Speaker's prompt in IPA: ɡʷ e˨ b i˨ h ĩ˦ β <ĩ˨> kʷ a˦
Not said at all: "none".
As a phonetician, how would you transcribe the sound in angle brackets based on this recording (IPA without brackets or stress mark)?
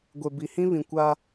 ĩ˨